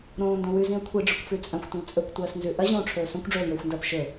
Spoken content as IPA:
ɾõːndõ wʉzĩə̯ kʷʰiɖ͡ʐɵkʷfʉ t͡sʼɐ̃xʷtʷɐ̃l t͡sʼɵkʷtʷɐːsnzʉ ʔɐʑõːʈ͡ʂʰɵː sõkʷɖ͡ʐɵːljɵːxʷndɐːp ʃɵ

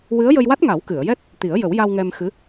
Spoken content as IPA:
wɨ˧˥ə̯jə˧jwa˦˥t̚ ŋa˨˩˦wkɨ˨˩˨ə̯jɛ˦˥t̚ | t̪i˨˩˦ə̯jə˨˩˦wja˧w ŋɛ˧mxɨ˧˥

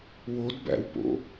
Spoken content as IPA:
wodbæ̰wpo̰

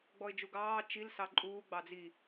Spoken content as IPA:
ɡ͡bɔɪ̯d͡ʒuɡɑː t͡ʃil sɑǃʼuː ɡ͡bɑd͡zi

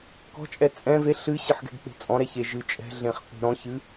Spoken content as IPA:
kɔ̤t͡ʃʼɛ t͡sʼɛ̃ ve ɬɨɕɨħ ɡɛ̤ɡk͡pe̤t͡sʼɔ̃ɾɛ çe ʒɨ t͡ʃʼɛ̤ɮẽχ θe̤ɾɔ̃çɨ

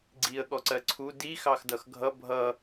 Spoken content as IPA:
ɡ͡ǀiə̯ ɠɔǀɜǀʰu di xɑxdʌxɡʱʌ bʱʌ

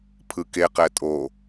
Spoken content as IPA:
pʰɯkeqɛ tʼo

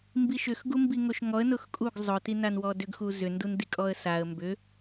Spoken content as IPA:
mbiʃʏx ɡumbiŋoʃŋɔə̯ nʊxkʼuɡ zˤʊ tinanwɔdʏɡ xuzʏ ndundikʼɔə̯saə̯ mbʏ

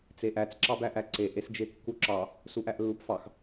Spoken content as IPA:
t͡seʔæt͡s ǁɑbæʔæǀe ʔesd͡ʒekːuǁɑ | suʔæʔlːupfɑx

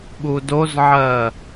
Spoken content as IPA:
ɓudozʕɜ

